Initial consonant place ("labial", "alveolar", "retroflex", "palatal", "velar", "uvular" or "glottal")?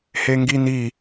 glottal